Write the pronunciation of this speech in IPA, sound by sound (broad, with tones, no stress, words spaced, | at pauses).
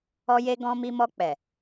ɔ˧je˧ ɡɔ̃˧mi˧mɔ˧ k͡pɛ˨